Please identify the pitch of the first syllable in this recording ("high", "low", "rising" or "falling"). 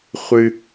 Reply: high